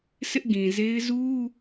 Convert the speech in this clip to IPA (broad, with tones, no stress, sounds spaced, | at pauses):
s ɪ˦ ʔ ɡ ĩ˨ z e˦ ɪ̯ z u˦